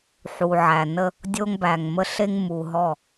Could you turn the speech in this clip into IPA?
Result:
ħ u˨ ʕ æ˨ n ə˦ | dʲ o˦ ŋ b æ˨ ŋ m ə˦ ɬ e˦ ŋ m u˨ ɦ ɔ˦˨

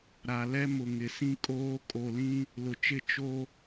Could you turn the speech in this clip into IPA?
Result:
ɾ a˨ l ɛ˦ m ʊ˨ ŋ ɪ˨ s ĩ˦ kʼ oː˦ kʼ o˨ l ĩ˦ | l ʊ˨ t͡ʃ ɪ˦˨ t͡ʃ o˦

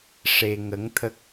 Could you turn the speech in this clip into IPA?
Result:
ʂ e˧ ŋ ə˧˥ ŋ t̪ʰ ə˦˥ k̚

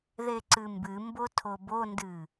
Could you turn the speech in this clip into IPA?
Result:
ð e ǀ ɨ m b ɨ m b o tʰ o b o n d ɨ

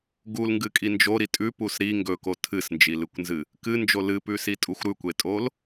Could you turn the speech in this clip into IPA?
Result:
ɡ u l ŋ ɡ ɨ kʼ i n d͡ʒ o ɾ i tʼ ʉ p u s ɾ i ŋ ɡ ɵ k o tʰ ɨ s n d͡ʒ i l ɨ kʷ n z ɨ | k ɨ n d͡ʒ o l ɨ p ʉ s i tʼ u xʷ ɾ ʉ kʷ e tʼ o l

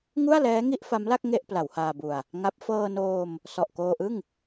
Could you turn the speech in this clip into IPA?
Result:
ŋ u˥˩ a̯ l ɛː˦˥ ŋ i˥˩ ʔ f a˦˥ m l a˥˩ k̚ ŋ e˥˩ ʔ p l a˩˦ w h aː˧ b u˧ a̯ | ŋ a˦˥ p̚ f ɤː˧ n oː˧ m | s ɔ˨˩ ʔ k oː˧ ʔ ɯ˥˩ ŋ

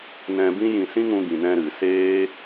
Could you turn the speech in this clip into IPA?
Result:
n ɛ̃˧ b ĩ˦ j ĩ˧ s ĩ˦ ŋ ũ˧ ɡ ĩ˨ n ɛ̃˧ ɾ ɨ˨ s eː˦

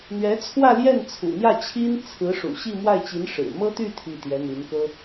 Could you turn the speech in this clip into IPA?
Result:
n̪ ɥ ɛ˧˥ t͡sʰ w ä˥˧ l j ɛ˥˩ n t͡sʰ ṵ˨˩ n̪ j ä˥˩ t͡ɕʰ i˥ n t͡sʰ ɹ̩˧˥ ʂ ṵ˨˩ ɕ i˥˧ m w a˥˩ ɪ̯ t͡ɕ i˧˥ n ʂ ɻ̩˨˩ m ɤ˥ t̪ y˥˧ t̪ʰ i˥˩ t̪ j ɛ˧˥ n̪ i˧˥ n k ɤ˥

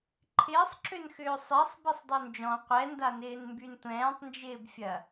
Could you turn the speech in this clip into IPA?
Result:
ǃʰ ɪː sˤ ǁ ø n x ʏː sˤ e sˤ b i sˤ dˤ ø n d͡ʒ ɔ̃ qʷ ɛ n d a n ɪː n m b y n tʷ ɛ̃ː tˤ n d͡ʒ ɪː b fʲ ɐ

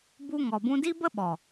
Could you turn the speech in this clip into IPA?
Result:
b u˧ ŋ ɔ˨ b ũ˧ d i˦ b ə˦ ɓ ɔ˨

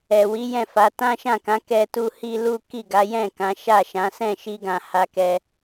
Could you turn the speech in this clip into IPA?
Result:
ɛ˨ w i˨˦ j ɛ̃˦˨ f a˨˦ t ã˦ ʃ ã˦˨ k ã˨˦ k ɛ˦ t u˦ h i˦ l u˦ k i˦˨ ɡ a˨˦ j ɛ̃˦˨ k ã˨˦ ʃ a˦˨ ʃ ã˨˦ s ɛ̃˦˨ ʃ i˧ ɡ ã˨ h a˧ k ɛ˧

